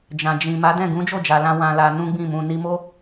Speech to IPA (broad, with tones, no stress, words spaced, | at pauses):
d͡ʒã˨d͡ʒĩ˨ ma˨˦dɛ̃˦˨ ɡũ˨˦d͡ʒo˦˨d͡ʒa˨ lã˧ wã˨ la˧ nũ˦ɡ͡bĩ˦˨mũ˧ ni˧mo˦